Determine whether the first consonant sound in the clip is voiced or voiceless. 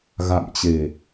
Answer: voiced